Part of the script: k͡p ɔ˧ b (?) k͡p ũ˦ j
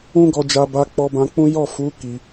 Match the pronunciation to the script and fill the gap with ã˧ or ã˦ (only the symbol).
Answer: ã˧